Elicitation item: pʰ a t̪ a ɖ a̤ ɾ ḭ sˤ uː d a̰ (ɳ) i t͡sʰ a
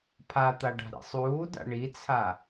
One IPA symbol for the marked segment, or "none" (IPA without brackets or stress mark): ɳ